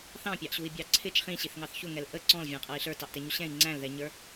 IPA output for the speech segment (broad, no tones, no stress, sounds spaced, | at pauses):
θ ɑ̃ pʲ ɑ ʔ ɕ u i̯ bʲ ɑ ǀʰ ɪ t͡ʃ χ ĩ ɕ i θ ŋ ɑ θ ç ʊ ŋ ɛ l ʔ ə ǀ ɔ̃ l vʲ æ̃ qʼ ʌ i̯ ɬ ə˞ t ɑ ʔ t ɛ ɲ u ɕ ɛ̃ i̯ ŋ͡ǀ æ̃ l ð ɛ ɲ ə˞